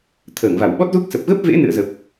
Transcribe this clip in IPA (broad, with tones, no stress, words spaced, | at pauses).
t̪ʰəː˧˩ŋva˧˩wɓɔ˦˥t̚zu˦˥k̚ sə˨˩p̚ɣə˦˥p̚vḛ˧˥ nɨ̰˧˨ə̯zə˨˩p̚